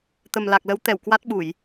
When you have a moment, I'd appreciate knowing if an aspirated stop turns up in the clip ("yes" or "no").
no